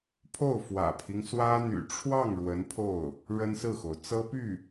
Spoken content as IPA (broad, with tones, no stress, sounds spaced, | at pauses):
pʰ o˥˩ ʊ̯ f w ä̰˨˩ pʰ i˦ ŋ s w ä˥ n̪ y̰˨˩ ʈ͡ʂʰ w ɑ˥˩ ŋ ɻ w ə˧˥ n pʰ o˥˩ ʊ̯ | ɻ ə˥ n s ɹ̩˥˩ x o˩ ʊ̯ t͡s ɤ˥ p y˥˩